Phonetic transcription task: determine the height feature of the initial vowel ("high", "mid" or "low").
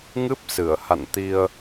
high